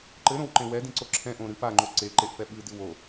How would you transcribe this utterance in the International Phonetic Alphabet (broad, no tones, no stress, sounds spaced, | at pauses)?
ǃ ɘ ɾ õ w ǃ ẽ w ɛ d ĩ ǀ o ǁʰ ɛ̃ ʔ õ ɾ ɨ p a ŋ͡ǃ o ǀ e ǃ e ʔ f ɛ ɓ ɨ d ɨ w o